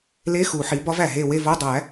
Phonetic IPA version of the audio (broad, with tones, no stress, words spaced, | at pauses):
le˧˥˧ xu˨˩˦ħi˩˥ bɒ˦˥væ˨˩ɦe˦˨ we˦˨vo˧˥˧dˤæ˨˩˦